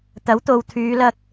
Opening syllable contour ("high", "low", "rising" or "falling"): rising